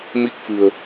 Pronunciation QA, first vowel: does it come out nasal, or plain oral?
oral